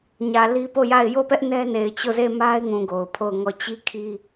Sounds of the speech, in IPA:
ɲ ä˨ l i˦ p o˦˨ j a˦˨ ɪ̯ j o˦˨ p ɛ˦ ʔ n ɛ˦ n e˨ ɪ̯ t͡ɕ o˦˨ z e˦˨ m a˦ ɪ̯ ŋ ũ˨ ɡ o˨ ʊ̯ pʰ o˦˨ ʊ̯ ŋ ɔ˦˨ t͡ɕ i˦ kʰ i˦

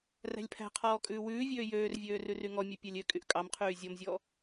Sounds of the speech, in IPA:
r æ̤ lʲ pʰ æ̤ qʰ ɔː kʼ ʉː w ʉː vʲ øː j øː r vʲ øː r ʉ r y ŋ ɔ mʲ ʉ pʲ æ lʲ ø kʼ y ʔ kʼ ɑ m qʰ yː zʲ ɔ m zʲ ɔ

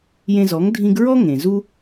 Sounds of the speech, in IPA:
j ẽ˧ z ɔ˨˦ ŋ dʱ ĩ˧ ɡ ɹ ɔ˦ ŋ ẽ˨ z u˦

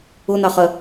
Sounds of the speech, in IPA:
ʊ n̪ ɑ χ ɜ

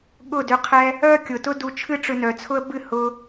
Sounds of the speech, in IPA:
ɠ ʊ˦˨ d ʏ˧ qʰ ɛ˦ | œ˦ kʲ ʊ˨ t ʊ˦ d u˧ t͡ʃʰ ɨ˦ ʈ͡ʂ ʏ˧ n œ˨ t͡sʰ ʊ˦ ə̯ b ɨ˦˨ h ʊ˧

